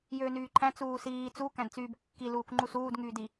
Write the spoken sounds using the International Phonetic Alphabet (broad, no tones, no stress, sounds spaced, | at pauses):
j øː n yː ǃʰ æ̃ t͡s uː s iː t͡s u k æ̃ d t͡s yː b kː i l uː k ŋ͡ǃ u s uː d ŋ yː d i